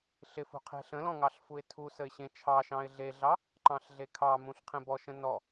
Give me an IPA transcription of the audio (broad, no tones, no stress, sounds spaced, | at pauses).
ɬ ɪ f ṳ qʰ e̤ ɬ ə̃ l ɔ̃ ŋ ɑ ɬ f u ɪ̯ tʰ u s ə ɪ̯ ɕ ẽ t͡ʃʰ ɑ ʃ ɑ̃ ɪ̯ ɮ e ɮ ɑ | ǃ ɑ̃ ɬ ɮ e kʰ ɑ m ũ ɬ qʰ ẽ b ɔ ʃ ə̃ n ɔ